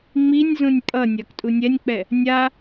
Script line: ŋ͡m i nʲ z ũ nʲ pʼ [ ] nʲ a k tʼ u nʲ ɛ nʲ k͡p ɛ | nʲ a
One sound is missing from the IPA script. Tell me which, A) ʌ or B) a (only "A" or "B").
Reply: A